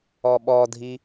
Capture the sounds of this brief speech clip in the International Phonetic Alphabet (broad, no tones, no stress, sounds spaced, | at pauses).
ɔ ɓ ɔ dʱ i